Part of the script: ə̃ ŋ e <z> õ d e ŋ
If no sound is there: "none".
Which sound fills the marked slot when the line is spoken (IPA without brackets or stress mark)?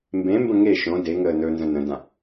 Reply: ʃ